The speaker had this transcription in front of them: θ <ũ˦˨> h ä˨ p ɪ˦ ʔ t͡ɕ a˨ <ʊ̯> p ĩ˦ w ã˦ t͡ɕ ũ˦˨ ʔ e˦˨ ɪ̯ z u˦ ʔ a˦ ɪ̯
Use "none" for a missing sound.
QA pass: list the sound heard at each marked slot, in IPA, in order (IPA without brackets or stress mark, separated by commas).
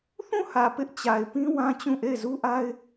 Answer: ũ˦˨, ɪ̯